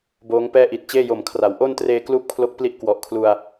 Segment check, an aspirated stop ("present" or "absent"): present